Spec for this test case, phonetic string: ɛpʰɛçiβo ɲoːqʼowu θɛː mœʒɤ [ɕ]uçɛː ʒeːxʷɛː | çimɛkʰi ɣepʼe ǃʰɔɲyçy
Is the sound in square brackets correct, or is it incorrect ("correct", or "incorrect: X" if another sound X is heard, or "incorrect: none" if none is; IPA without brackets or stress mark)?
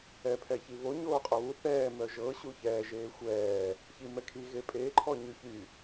correct